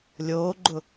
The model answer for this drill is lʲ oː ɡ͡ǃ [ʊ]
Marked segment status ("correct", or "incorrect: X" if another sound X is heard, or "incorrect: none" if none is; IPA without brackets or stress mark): correct